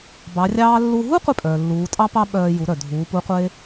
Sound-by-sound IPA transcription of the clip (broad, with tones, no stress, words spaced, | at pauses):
bɑ˧˥rʲɑː˥ lːu˧ɦu˥ qʷe˥pʼœː˩lːuː˩˧ tʼɑ˥pɑ˥ɓœː˧ ju˩˧ɾœ˩dʱuː˩˧ pu˧˥qʷe˥